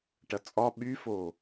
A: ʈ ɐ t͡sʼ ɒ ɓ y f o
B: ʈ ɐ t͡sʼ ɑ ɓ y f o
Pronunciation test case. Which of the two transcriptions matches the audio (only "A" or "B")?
A